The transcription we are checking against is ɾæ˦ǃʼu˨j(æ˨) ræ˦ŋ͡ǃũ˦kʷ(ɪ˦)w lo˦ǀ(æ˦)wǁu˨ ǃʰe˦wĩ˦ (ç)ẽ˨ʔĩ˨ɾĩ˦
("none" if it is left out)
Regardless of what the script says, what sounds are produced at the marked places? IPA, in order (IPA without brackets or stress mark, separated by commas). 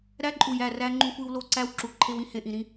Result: æ˦˨, i˦, æ˦, h